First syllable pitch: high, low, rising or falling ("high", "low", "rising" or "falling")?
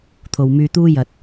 low